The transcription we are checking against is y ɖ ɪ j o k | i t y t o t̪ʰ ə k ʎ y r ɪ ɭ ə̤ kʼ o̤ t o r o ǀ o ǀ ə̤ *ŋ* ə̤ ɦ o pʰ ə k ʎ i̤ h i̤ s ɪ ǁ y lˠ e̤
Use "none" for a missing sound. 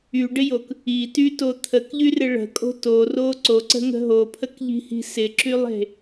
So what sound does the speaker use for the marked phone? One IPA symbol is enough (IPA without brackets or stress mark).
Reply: ŋ